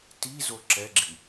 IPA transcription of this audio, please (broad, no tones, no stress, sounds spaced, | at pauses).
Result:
t i z o ǁ ɛ ɡ͡ǁ i